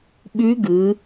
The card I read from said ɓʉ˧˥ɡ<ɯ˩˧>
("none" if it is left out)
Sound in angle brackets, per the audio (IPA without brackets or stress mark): ɯ˩˧